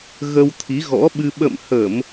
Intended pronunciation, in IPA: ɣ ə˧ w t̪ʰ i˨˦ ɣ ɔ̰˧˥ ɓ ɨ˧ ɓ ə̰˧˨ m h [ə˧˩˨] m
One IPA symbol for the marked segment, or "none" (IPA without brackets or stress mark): ə˧˩˨